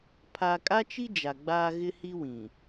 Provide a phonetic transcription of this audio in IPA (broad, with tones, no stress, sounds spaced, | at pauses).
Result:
pʰ a˦ kʼ a˦ t͡ʃ i˦ d͡ʒ a˨ ɡ͡b aː˦ ɣ ɪ˦ h i˦ w ĩ˨